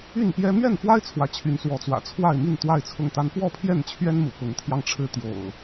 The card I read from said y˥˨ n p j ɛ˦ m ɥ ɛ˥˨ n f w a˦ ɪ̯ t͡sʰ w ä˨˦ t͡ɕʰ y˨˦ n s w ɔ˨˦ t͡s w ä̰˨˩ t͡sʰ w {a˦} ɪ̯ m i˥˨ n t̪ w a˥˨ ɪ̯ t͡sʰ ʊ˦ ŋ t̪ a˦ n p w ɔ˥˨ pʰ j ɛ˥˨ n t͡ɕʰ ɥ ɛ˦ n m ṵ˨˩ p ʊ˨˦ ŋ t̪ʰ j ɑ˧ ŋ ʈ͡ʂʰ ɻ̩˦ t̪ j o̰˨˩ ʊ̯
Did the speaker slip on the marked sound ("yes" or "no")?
yes